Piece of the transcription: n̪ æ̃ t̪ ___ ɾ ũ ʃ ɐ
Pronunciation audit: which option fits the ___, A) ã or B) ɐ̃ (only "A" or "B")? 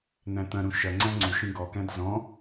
B